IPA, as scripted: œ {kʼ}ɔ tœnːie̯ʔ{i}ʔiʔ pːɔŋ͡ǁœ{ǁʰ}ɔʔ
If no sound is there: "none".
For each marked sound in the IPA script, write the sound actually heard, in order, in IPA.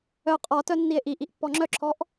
qʼ, i, ǁʰ

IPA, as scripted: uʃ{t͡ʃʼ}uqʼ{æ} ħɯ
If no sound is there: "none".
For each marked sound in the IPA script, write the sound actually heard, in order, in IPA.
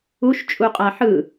t͡ʃʼ, a

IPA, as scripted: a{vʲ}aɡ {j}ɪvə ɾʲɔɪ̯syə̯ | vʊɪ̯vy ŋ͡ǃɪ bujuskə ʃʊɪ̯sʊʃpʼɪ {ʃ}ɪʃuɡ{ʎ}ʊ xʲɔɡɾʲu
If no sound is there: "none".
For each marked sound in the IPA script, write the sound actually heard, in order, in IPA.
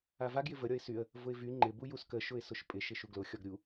v, j, ʃ, l

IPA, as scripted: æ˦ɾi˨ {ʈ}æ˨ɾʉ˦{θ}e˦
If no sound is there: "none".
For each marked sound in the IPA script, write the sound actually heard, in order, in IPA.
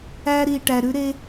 ʈ, ɾ

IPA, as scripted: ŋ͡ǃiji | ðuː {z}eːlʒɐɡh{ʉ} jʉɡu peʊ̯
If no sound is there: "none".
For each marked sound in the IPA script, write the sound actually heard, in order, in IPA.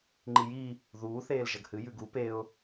θ, ɨ

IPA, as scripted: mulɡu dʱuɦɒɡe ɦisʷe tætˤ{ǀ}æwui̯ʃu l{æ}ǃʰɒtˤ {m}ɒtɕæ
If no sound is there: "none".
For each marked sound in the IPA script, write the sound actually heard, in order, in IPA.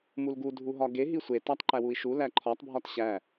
ǃ, æ, bʱ

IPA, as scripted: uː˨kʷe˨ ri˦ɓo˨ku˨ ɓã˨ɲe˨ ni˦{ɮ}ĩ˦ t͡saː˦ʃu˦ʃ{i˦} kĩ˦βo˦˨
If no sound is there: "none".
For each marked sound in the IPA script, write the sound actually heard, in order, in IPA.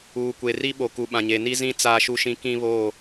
z, ĩ˦

